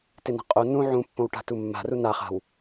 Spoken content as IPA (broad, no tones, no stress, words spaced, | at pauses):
tɪna̤qʼo nũ ʕũpːõw ʈa̤tumːa̤ru naχa̤w